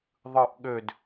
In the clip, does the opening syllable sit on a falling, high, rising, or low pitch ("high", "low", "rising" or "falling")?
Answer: low